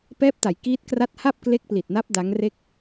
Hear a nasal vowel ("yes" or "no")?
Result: no